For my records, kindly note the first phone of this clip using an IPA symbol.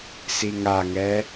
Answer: s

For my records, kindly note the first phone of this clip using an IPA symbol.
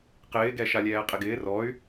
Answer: q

